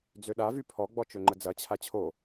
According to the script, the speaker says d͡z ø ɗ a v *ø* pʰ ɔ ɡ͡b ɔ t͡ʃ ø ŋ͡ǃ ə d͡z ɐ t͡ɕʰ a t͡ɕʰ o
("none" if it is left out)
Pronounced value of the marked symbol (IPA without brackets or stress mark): y